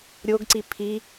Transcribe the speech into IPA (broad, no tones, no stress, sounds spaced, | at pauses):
ɾʲ o ɡ ǀ i pʰ i